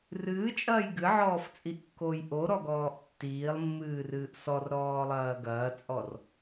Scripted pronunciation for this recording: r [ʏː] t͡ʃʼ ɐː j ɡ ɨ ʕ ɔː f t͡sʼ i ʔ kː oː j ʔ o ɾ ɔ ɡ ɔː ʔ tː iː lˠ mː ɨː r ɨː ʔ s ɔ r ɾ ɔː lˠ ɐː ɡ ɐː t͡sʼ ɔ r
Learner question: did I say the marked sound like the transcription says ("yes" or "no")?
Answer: no